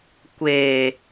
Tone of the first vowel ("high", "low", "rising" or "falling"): low